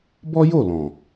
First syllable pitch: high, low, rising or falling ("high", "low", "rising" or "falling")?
high